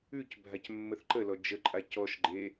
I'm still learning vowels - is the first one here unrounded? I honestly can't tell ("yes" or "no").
no